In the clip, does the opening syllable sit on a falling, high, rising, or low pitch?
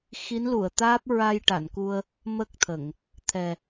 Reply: rising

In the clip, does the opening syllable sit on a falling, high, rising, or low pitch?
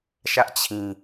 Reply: high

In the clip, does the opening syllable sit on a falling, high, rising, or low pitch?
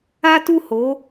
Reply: high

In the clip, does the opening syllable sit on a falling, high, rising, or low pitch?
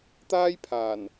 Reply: high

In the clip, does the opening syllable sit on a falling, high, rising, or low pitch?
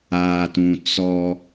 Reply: low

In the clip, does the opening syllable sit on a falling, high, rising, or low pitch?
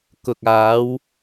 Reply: low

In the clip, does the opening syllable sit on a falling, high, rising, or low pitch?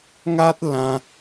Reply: high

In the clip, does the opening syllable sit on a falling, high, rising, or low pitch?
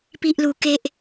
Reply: high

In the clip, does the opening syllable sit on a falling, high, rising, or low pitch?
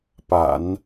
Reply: low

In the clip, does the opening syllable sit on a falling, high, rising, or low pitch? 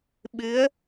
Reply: rising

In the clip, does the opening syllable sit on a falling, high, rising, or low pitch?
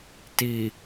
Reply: low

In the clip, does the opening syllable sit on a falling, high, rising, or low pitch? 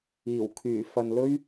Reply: low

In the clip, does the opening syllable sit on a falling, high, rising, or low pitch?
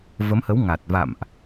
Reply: rising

